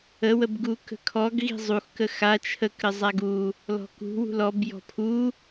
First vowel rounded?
no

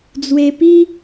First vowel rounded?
no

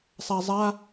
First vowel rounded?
no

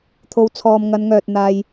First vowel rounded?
yes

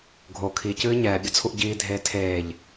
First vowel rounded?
yes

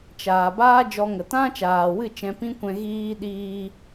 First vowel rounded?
no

